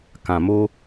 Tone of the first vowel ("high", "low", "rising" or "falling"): low